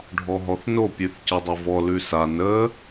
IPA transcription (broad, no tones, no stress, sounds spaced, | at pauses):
ɖʱ ɔ ɦ ɔ θ n o pʲ ʉ θ c ə dˤ o v ɔ l ʉ s a n ə